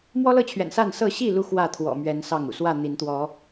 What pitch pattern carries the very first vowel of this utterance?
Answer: high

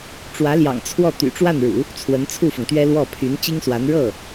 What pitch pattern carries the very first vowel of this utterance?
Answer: rising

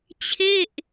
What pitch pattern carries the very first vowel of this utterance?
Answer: falling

